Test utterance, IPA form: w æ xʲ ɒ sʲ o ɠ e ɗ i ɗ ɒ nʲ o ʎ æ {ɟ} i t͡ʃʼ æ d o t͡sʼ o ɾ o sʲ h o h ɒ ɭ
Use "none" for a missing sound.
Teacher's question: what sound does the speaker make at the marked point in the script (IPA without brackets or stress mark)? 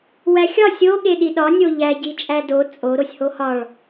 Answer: ɟ